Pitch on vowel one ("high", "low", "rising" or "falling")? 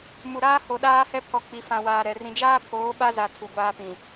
low